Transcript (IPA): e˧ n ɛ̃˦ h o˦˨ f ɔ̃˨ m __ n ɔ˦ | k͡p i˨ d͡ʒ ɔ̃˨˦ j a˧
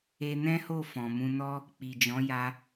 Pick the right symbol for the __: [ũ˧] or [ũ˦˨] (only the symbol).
ũ˧